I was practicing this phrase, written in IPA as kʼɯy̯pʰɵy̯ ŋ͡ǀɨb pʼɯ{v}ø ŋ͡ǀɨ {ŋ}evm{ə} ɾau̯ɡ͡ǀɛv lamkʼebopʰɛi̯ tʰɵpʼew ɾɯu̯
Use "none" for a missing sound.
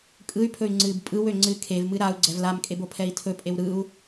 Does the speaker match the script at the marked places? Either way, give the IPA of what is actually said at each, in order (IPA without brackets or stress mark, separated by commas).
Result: w, kʰ, ɨ